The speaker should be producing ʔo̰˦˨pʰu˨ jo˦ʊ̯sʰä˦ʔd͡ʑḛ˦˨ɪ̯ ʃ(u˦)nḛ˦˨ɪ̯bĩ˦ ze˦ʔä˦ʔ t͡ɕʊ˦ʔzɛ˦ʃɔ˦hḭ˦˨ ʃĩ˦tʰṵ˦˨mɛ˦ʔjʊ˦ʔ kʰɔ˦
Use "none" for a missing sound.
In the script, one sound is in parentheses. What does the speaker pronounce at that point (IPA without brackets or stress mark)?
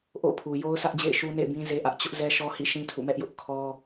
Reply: u˦